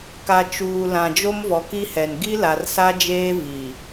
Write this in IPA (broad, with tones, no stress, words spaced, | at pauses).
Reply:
ka˨t͡ʃuː˨lã˨ d͡ʒo˦mvɔ˨ki˦hɛ˨n ɡi˦la˨rsa˦d͡ʒeː˦ vi˨